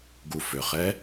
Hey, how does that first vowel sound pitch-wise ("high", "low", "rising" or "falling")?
low